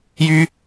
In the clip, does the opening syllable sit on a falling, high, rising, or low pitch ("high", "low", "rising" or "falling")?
high